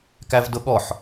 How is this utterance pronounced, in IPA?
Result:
kævdʊɠɔħ

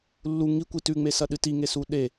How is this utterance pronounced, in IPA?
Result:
lːu ŋikʷi tʉŋ͡mesɐɗɨ tiŋesu ɗe

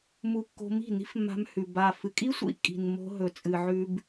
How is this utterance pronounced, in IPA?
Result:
mu˧kːo̤˧mi̤˦˨ ni̤˦fmːa̤˧mhʉ˨ ba˨ fɨ˨kʼi˦sʷḭ˦ kʼi̤˨n mo̤˧ɦɵ˨ t͡sʼɨ˨ʕʉ˧b

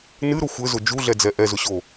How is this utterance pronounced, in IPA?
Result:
nɨɾʊ xʷɘzʊ d͡ʒuɮɛd͡zɛ ʔɛzʊɕo

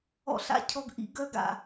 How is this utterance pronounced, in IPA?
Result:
ɔ̰˧ɬa̰˦cʰɔ˧ɡʔḭ˧ ɡœ˧ɡa̰˨

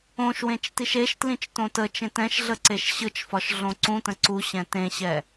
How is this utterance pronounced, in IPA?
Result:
õʃwẽt͡ʃ tiʃeʃtlĩt͡ʃ tõtət͡ʃẽt ɛ̃ʃɮə ǀeʃɕɯt͡ʃfɒʃ ɮõǀũtə̃ ǀuɕɛ̃ tẽɕɛ

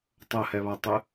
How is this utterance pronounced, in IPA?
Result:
tˤɐhɛβatˤɘ

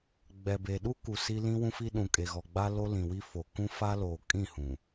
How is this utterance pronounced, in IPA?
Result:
ɡ͡bɛ˨be˨ɗu˦ku˨ si˦lĩ˦wũ˦fi˦ ɗũ˨kʼe˨ɣɔ˨ɡ͡ba˦ lo˦lĩ˨wi˦fo˨ kũ˦fa˦loː˨ kʼĩ˦˨hũ˨

